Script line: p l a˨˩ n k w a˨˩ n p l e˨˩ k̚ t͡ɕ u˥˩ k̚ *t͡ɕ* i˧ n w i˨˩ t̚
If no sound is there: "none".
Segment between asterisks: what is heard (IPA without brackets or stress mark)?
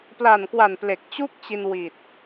t͡ɕ